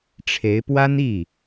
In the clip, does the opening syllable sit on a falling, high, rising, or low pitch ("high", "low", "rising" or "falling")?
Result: rising